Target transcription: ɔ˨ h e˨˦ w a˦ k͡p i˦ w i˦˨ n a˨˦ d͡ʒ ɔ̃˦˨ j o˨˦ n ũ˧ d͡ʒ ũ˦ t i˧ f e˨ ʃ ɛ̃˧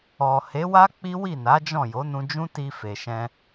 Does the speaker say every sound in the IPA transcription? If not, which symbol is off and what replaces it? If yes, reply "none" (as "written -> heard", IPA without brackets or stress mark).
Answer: none